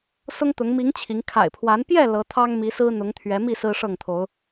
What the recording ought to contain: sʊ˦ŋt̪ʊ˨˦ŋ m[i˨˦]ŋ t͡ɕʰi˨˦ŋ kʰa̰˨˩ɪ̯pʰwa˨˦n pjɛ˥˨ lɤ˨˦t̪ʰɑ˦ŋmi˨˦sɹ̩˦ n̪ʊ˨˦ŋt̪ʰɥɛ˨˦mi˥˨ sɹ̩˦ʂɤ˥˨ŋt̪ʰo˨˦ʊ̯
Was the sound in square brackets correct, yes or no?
yes